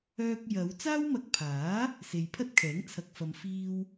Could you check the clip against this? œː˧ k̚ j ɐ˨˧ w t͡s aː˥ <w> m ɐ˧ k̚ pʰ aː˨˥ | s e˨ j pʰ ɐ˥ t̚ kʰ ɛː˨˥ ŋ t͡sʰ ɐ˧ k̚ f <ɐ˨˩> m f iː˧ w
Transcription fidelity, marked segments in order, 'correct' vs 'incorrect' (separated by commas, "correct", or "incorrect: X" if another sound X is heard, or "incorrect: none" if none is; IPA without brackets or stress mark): correct, incorrect: ɐ˧